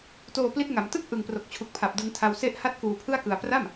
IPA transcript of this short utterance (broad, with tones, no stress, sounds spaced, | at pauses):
t oː˧ p l i˦˥ t̚ ŋ a˩˦ m t ɯ˥˩ k̚ ʔ ɯ˨˩ ŋ p r o˨˩ k̚ t͡ɕʰ u˨˩ k̚ pʰ a˨˩ p̚ d ɯ˧ ŋ tʰ a˧ w s e˦˥ ʔ h a˦˥ t̚ k uː˧ pʰ ɯ˥˩ a̯ k ɯ˧ a̯ p r a˥˩ m